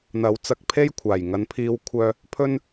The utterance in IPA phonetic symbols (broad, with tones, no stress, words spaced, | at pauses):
n̪ɐ˨˥w t͡sɐ˧k̚pʰe˥jkʷʰaː˨˩j ŋɐ˨˧npʰiː˧wkʷʰœː˧ | pʰɵ˥n